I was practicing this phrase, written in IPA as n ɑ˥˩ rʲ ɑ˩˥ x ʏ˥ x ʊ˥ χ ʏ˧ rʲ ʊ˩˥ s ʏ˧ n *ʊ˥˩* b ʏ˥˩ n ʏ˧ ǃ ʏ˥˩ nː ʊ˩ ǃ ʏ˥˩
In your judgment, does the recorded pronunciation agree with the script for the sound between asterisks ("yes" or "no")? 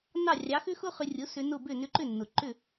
yes